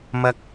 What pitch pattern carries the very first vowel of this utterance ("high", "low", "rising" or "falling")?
high